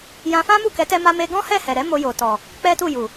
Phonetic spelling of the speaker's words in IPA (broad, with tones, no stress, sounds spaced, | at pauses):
j ã˧ f ã˦ m u˦˨ k ɛ˨˦ t ɛ˦ m a˦ m e˦ ɡ ɔ̃˦ h ɛ˦˨ h ɛ˨ ɾ ɛ˨˦ m o˧ j o˨ t ɔ˨ | k͡p ɛ˦ t u˦˨ j u˨